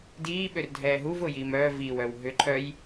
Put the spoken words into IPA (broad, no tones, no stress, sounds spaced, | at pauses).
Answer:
d iː ɓ ø r dʱ ɛː ɦ u v ʊː j iː m œː v iː w œː w ɦ ʏ ǃʰ œ j